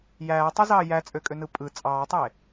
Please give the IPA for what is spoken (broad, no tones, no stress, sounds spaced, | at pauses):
j æː tˤ u z ɑː j æ t͡sʼ ø kʼ ø n ɯ pʼ ɯ t͡sʼ ɑː tˤ e